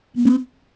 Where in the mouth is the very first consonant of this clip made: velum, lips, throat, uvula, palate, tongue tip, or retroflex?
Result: lips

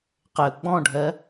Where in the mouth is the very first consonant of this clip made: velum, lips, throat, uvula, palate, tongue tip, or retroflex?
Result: uvula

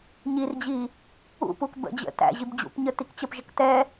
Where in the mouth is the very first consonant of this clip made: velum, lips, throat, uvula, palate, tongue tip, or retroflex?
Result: palate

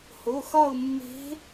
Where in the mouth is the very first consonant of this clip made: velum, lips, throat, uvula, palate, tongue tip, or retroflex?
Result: throat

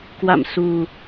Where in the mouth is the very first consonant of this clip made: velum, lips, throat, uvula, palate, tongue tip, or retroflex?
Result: velum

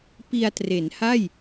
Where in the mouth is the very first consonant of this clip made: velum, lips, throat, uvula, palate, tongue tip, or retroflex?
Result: lips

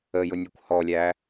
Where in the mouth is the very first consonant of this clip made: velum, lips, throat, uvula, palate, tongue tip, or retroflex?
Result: palate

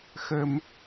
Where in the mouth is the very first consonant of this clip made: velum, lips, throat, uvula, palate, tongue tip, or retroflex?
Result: velum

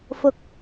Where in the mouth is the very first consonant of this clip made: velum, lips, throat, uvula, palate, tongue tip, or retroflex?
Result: lips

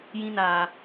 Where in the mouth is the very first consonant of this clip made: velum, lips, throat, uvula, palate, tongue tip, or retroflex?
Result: palate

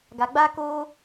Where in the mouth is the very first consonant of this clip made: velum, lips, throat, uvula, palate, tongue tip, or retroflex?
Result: velum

